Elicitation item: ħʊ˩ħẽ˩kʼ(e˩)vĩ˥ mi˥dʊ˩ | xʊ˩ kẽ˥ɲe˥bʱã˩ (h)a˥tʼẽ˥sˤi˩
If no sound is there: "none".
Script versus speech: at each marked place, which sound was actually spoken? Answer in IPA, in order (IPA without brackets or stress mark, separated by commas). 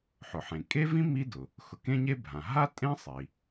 e˥, ɦ